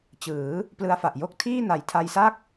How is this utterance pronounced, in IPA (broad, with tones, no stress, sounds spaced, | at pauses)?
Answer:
t͡ɕ ɯː˩˦ | p l ɯ˧ a̯ f a˨˩ ʔ j o˥˩ k̚ tʰ iː˥˩ n a˨˩ j tʰ a˧ j s a˥˩ k̚